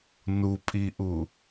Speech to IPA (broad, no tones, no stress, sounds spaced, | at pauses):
n u pʼ i ʔ u